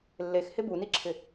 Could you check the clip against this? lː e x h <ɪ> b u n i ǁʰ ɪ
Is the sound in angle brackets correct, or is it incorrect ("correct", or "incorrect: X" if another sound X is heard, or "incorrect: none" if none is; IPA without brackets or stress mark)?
correct